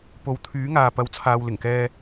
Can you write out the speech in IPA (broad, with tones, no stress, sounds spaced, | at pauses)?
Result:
p o˨ w t̪ʰ yː˨˥ ŋ aː˨ p ɐ˨ w t͡sʰ aː˨ w l ɪ˨˩ ŋ k ɛː˧